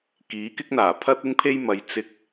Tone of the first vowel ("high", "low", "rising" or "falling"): rising